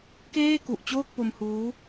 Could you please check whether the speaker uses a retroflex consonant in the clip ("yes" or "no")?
no